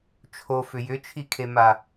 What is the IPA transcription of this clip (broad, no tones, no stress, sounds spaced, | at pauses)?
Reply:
t͡ʃʰ o f ʏ j ʏ t͡ʃʰ i kʰ e m a